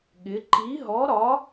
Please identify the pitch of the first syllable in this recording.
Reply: rising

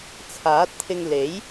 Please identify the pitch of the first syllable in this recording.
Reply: rising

